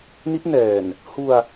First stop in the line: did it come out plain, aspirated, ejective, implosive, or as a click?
plain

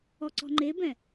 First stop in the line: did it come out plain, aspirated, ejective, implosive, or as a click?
click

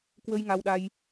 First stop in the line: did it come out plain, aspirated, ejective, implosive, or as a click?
plain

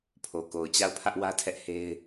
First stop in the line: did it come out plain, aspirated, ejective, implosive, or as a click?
aspirated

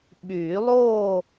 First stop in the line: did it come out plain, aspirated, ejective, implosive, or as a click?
implosive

